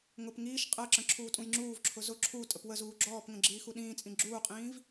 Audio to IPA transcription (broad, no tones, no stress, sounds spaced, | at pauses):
ŋ ʊ p ŋ iː ʃ qʼ ɜ ǁ ə̃ ǁʰ uː tʼ ũ j ŋ͡ǁ uː v ǁʰ ʊ z ʊ ǁʰ u tʼ ə p w ə z uː ɡ͡ǁ ɔː p ŋ ə̃ ɡ͡ǁ iː x u ɗ ĩː t͡sʼ ĩ ɡ͡ǁ uː qʼ ĩː v